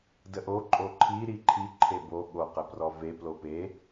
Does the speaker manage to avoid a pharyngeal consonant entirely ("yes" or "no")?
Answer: yes